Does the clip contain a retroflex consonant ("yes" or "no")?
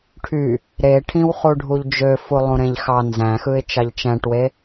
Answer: yes